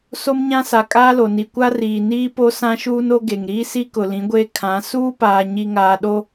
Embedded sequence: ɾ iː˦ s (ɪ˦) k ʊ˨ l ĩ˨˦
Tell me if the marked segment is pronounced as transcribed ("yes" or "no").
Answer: no